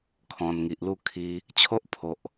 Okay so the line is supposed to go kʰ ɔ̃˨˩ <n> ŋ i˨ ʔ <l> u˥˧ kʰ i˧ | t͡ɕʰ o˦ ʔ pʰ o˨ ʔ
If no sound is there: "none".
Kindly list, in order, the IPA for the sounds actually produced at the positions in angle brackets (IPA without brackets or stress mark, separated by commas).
n, l